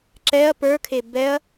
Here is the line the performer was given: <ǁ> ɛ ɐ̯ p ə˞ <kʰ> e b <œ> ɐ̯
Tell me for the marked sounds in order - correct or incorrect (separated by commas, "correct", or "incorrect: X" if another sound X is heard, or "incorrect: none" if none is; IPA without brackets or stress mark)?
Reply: correct, correct, incorrect: ɛ